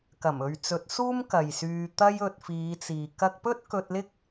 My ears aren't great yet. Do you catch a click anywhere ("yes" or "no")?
no